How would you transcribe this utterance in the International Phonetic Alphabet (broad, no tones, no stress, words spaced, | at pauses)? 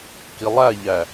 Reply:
kilˠæʎæ